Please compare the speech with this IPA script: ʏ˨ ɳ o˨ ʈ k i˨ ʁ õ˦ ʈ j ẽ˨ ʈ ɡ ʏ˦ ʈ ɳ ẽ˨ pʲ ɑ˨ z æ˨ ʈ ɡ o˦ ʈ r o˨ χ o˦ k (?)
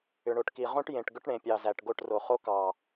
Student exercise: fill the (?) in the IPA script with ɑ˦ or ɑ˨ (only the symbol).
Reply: ɑ˨